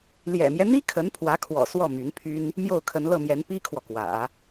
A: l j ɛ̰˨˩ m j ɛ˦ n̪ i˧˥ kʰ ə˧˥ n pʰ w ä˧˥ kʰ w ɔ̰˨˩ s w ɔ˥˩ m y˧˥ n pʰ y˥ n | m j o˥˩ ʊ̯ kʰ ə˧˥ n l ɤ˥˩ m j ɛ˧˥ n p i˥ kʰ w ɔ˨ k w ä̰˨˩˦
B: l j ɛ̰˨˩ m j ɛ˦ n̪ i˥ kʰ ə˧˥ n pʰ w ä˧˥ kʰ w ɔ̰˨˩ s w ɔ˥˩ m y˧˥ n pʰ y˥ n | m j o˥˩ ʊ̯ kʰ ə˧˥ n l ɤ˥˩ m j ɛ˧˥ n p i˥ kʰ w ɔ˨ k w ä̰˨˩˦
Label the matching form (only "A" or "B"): B